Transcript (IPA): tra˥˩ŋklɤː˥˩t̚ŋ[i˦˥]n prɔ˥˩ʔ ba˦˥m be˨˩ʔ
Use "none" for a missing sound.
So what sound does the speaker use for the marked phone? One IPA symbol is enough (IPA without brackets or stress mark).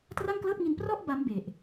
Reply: i˧